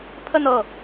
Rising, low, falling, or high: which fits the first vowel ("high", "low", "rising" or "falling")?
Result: falling